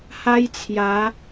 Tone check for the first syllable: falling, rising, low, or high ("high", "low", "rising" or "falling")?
high